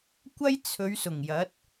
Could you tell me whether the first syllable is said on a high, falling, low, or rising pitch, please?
high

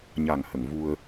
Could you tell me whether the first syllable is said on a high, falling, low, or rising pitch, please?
low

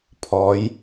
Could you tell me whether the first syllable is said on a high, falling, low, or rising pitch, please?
rising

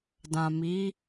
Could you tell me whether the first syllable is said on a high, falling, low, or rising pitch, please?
low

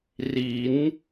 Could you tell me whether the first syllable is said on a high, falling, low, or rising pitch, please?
rising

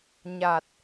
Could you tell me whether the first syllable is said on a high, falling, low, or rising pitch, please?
low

